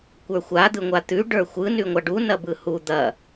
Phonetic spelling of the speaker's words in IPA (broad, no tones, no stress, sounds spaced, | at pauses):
kʷ ə˞ xʷ a d̪ ɯ ŋʷ a t̪ ʉ ɖ ə˞ xʷ ɯ n ʉ ŋʷ a ɖ u n ɐ b ɯ h u d̪ ɐ